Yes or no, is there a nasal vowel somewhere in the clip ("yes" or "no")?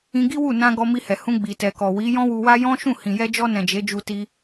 yes